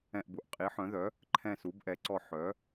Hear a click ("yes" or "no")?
yes